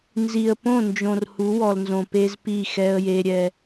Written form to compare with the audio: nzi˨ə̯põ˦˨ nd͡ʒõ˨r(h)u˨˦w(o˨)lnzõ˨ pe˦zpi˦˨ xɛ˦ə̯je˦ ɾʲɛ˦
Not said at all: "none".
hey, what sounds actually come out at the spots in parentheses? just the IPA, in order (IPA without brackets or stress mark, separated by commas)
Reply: h, ɔ˨